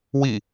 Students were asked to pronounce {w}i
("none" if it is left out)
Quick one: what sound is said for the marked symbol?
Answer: w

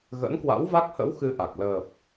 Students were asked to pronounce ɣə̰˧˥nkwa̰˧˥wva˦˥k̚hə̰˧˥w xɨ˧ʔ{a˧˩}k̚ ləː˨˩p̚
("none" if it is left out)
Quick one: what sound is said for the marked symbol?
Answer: a˨˩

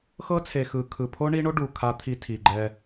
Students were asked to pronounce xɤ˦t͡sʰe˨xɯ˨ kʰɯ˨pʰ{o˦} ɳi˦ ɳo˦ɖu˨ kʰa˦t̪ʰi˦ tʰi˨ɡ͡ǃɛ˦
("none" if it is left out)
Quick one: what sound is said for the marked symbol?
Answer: o˦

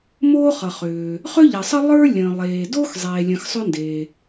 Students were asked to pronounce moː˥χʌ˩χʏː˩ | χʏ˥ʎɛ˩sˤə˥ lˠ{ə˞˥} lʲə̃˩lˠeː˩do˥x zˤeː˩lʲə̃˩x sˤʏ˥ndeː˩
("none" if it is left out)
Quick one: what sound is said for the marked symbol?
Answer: ə˞˥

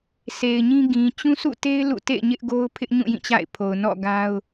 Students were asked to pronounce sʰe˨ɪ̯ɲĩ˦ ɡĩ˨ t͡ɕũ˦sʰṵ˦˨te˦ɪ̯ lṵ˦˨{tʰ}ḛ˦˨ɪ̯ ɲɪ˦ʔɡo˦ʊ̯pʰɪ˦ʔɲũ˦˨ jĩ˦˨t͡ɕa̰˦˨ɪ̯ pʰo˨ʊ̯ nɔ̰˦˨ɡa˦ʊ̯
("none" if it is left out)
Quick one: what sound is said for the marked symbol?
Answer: t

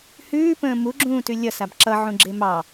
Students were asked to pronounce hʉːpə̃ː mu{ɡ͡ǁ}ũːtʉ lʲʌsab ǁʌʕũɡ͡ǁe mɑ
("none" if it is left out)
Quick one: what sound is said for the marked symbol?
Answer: ɡ͡ǁ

